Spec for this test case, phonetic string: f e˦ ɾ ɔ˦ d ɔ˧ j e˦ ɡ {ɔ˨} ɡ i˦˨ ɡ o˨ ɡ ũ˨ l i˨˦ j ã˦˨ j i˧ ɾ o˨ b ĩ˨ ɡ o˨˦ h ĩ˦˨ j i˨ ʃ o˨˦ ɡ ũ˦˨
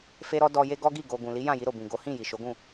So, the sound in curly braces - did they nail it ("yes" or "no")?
no